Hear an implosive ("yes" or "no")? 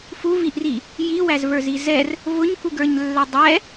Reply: no